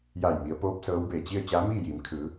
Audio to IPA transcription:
j a˧˩ j m i˩˧ ə̯ p oː˧˥ p̚ s ɤː˧˥ w b eː˧˩ t͡ɕ i˥˨ ə̯ t͡ɕ aː˧˥ m iː˥˨ j iː˩˧ m kʰ ɯː˩˧

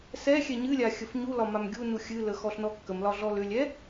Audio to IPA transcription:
s ɛ xʲ ɛ ɲ ɨ lʲ a xʲ ə f ɲ u l ɒ m a m ɡʲ u n u xʲ ɨ l ə x ɔ ɬ n ɔ kː ə m l ɒ ɮ ɔ l ʏ lʲ ɛ

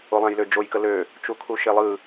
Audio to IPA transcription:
o lˠ ã j l ø d͡ʒ o j k ə l ø | t͡ʃ u kʰ u ʃ e lˠ ɯ

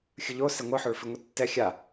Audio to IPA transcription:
xʲ ɯ ʎ o s ɛ ŋʷ ɯ ħ o ɭ f i ŋʷ i tː ɛ xʲ a

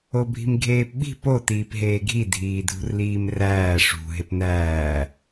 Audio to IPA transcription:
o bʱ i̤ m ɡʱ eː p ɓ i̤ p o t iː p ɦ eː ɡʱ i dʱ iː dʱ ṳ r l iː m r æː ʂ ṳ ɦ e p n æː

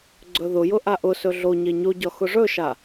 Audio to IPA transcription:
ɡ͡ǀ ɵ ð ʊ j ʊ ʔ a ʔ ʊ s ɵ ɮ o ɲ e ɲ o ɟ ɒ x ʊ ʐ ɵ ʃ a

